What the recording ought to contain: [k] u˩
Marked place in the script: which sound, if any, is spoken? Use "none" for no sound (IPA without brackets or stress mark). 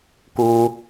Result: k